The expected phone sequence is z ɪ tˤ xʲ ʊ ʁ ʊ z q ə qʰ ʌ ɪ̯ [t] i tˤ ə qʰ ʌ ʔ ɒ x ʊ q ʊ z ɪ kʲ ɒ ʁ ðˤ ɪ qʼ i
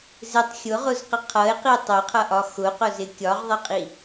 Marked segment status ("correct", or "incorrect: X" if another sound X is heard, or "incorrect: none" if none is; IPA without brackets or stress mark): incorrect: q